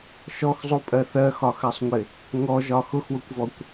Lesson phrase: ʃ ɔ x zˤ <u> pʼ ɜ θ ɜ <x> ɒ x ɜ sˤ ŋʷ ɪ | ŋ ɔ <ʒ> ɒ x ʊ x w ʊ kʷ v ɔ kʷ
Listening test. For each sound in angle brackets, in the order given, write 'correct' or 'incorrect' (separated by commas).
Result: correct, correct, correct